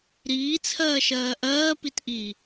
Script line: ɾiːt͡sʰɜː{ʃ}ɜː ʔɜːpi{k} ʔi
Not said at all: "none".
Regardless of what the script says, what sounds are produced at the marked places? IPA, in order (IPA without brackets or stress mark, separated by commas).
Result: ʃ, t